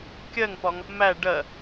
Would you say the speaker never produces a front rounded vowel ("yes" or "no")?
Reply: yes